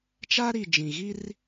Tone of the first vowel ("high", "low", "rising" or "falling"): high